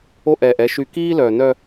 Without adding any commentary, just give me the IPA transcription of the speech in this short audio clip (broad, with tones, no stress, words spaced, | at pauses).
o˦˨ʔɛː˨ʔ ɛ˦ʃy˦ kiː˦lœ˨nœ˦